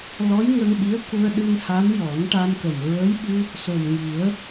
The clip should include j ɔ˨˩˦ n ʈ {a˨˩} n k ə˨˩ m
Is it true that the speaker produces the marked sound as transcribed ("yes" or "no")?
no